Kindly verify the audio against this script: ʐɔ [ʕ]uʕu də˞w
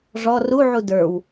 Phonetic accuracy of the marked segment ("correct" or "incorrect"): incorrect